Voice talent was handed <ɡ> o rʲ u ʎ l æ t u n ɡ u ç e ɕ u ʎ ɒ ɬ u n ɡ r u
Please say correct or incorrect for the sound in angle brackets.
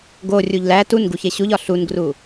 correct